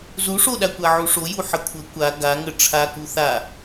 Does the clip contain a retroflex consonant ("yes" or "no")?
yes